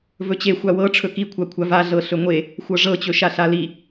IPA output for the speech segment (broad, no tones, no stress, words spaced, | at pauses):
vɵt͡ɕe xʷawɤʈ͡ʂʰɵ kikʷʰakʷʰa vaɮɤ ɬɵŋʷe | xʷɤʐɤt͡ɕɵʃa ɬali